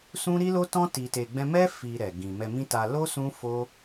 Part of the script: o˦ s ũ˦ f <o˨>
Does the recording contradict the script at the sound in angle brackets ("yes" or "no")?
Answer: yes